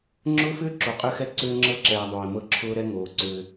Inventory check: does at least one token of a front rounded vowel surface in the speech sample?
yes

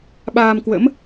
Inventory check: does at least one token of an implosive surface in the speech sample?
yes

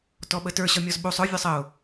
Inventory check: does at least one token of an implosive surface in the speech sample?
yes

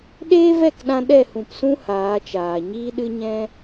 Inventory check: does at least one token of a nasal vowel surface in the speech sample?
yes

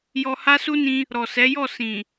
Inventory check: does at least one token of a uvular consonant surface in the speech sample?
no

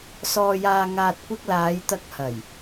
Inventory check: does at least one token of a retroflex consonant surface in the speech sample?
no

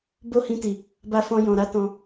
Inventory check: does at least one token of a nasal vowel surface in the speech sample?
yes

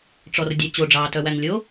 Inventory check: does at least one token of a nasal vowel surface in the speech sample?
no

